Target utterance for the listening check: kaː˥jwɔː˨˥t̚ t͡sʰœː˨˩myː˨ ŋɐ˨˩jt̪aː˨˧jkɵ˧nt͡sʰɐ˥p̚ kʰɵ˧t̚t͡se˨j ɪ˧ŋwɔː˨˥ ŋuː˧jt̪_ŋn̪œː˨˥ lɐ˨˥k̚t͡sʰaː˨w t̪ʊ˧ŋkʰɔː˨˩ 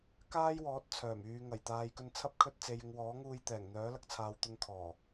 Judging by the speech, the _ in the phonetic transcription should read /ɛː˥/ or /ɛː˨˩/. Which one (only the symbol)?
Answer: ɛː˨˩